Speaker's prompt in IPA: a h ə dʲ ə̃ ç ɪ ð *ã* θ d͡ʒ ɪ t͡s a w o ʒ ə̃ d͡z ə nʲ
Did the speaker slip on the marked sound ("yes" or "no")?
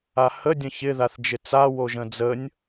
yes